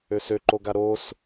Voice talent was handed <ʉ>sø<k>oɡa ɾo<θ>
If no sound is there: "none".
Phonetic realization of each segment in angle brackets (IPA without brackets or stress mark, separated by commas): ø, ǃ, s